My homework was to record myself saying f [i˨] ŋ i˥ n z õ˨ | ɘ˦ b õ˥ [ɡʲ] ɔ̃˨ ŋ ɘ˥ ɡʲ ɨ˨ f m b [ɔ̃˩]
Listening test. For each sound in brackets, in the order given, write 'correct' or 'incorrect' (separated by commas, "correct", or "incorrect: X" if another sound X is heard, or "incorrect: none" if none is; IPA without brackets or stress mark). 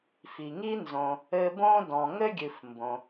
correct, incorrect: d, incorrect: õ˩